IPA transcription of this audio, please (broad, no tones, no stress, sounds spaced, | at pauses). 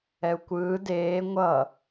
ɛ u̯ kʷ ɯː d eː ŋʷ ʌ